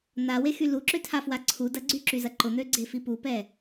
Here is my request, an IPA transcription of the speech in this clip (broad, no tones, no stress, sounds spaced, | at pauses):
n̪ a w e x y l u ǁ ø tʰ a f w a ǀʰ u d ɐ ɡ͡ǀ y ǁ y z ɐ ǃ ʊ n̪ ø ɡ͡ǀ e f i p u p ɛ